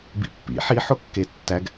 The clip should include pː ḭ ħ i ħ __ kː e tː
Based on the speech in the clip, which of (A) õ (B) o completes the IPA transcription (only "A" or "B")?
B